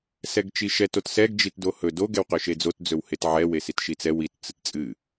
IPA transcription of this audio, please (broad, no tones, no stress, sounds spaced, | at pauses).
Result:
s ɛ ɡ t͡ʃ i ʃ ɛ t o t s ɛ ɡ d͡ʒ i t d o h ɵ d o ɡ ɛ w q ɵ ʃ e d͡z o t d͡z ɵ w h e t ʕ ɛ w e s i t ʃ i t͡s ɛ w i t t͡s ɨ t t͡sʼ ɨ